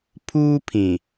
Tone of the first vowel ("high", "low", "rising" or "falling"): high